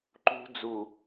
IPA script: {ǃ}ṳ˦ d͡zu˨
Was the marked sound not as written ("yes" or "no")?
no